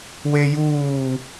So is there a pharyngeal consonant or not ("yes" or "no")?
no